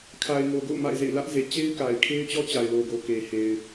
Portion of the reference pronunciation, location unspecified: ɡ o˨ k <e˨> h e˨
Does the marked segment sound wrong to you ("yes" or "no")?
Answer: no